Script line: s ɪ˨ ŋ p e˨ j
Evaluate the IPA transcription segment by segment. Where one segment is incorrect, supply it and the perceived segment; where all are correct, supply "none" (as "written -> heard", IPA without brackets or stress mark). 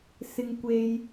p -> kʷ